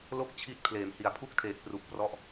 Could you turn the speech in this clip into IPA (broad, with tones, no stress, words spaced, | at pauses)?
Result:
lo˥˩k̚t͡ɕʰi˦˥t̚ pʰleː˨˩mhi˨˩a̯pʰu˥˩k̚tʰeː˨˩k̚ pru˨˩k̚ prɔ˦˥ʔ